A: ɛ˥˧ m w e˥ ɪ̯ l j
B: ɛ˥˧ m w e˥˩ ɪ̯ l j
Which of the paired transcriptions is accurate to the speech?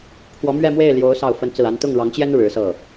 B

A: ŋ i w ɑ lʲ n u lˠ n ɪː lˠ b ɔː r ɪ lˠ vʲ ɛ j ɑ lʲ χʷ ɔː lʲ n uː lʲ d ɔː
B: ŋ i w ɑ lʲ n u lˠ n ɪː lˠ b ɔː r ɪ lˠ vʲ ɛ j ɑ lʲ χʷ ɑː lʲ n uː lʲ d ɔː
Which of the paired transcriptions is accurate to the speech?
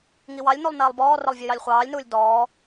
B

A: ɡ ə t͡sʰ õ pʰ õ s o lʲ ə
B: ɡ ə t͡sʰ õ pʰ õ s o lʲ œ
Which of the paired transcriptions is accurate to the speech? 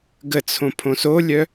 B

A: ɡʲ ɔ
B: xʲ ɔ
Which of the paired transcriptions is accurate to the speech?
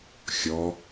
B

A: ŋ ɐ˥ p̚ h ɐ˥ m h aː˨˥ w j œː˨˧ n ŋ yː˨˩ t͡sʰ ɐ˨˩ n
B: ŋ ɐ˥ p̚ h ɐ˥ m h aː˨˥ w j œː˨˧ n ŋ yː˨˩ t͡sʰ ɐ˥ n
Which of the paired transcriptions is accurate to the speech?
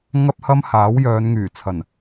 A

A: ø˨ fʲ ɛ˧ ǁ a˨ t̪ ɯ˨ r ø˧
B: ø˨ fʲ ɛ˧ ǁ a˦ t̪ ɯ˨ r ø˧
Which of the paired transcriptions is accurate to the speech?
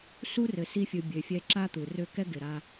B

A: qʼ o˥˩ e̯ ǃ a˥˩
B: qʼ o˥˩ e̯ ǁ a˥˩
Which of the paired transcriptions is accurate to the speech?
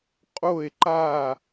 A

